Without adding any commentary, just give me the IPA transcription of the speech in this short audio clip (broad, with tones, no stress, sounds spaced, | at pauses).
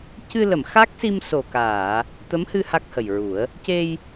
c ɨ˧ l ə˨˩˨ m x a˦˥ k̚ s i˧ m s o˨˩ k aː˨˩˨ | t̪ ə˧˥ m h ɨ˧ h a˦˥ k̚ h ə˨˩ j ɹ u˨˩˦ ə̯ | c e˧ j